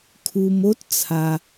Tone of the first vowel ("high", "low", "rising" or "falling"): low